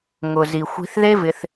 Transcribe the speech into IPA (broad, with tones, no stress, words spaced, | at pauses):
ŋʊ˨zi˨xʷi̤˧θ ðe˦vɪ˧θ